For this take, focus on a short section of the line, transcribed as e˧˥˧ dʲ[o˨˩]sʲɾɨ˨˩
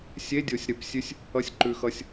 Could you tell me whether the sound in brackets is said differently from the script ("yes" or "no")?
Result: no